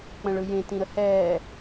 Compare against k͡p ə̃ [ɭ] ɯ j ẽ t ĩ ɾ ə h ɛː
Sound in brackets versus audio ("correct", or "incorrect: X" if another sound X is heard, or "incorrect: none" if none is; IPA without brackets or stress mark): correct